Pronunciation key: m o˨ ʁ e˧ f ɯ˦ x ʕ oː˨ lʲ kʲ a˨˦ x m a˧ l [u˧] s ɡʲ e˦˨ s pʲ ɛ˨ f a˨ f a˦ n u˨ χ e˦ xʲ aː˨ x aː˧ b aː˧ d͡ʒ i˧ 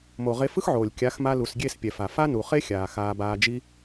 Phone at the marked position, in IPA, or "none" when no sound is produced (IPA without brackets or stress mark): u˨